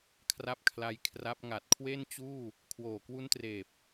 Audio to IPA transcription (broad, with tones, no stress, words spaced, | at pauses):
kʰra˥˩p̚kʰla˧j kʰra˦˥p̚ ŋa˨˩t̚kʰwe˥˩nt͡ɕuː˥˩ | kʰwoː˨˩kwu˦˥ntreː˨˩p̚